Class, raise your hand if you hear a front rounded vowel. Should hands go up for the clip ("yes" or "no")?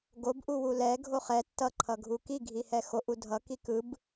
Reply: no